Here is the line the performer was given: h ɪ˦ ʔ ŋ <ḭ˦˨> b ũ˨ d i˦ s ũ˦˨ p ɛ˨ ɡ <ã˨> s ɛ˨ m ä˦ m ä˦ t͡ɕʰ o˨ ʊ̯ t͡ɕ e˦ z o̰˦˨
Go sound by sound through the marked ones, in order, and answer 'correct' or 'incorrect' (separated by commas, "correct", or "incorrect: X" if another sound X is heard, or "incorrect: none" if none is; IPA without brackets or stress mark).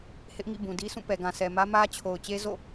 correct, correct